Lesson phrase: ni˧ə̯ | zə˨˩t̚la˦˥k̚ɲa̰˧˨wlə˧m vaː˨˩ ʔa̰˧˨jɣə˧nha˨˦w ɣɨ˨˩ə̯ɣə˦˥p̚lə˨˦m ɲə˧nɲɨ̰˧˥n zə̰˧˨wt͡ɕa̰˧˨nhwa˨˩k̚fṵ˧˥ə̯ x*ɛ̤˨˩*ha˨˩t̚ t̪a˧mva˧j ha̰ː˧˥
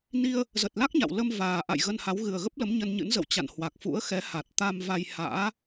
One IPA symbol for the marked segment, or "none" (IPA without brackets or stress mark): ɛ˨˦